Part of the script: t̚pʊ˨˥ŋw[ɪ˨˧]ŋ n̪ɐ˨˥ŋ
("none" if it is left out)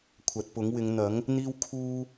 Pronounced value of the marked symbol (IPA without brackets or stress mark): ɪ˨˧